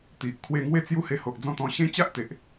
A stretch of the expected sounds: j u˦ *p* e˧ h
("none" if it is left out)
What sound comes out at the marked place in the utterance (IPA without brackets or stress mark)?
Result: h